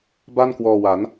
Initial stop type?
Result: plain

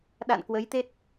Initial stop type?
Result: implosive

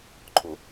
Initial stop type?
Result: click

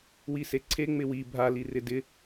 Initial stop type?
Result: click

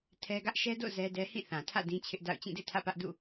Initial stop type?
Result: aspirated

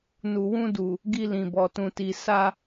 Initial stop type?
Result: plain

